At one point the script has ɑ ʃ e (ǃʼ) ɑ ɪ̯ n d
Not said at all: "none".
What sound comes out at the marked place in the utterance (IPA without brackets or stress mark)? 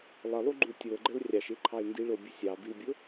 ǃʰ